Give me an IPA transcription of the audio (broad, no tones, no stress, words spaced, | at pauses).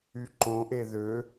yǃõʔe ðø